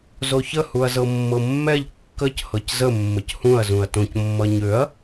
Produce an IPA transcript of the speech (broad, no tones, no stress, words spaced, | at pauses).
zoçə huɐ̯zɤmːɤmːɛʎ kːəc hɤczə mːəchũɐ̯ zũɐ̯tõc mːʌɲøɐ̯